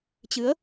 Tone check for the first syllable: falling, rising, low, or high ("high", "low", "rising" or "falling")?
rising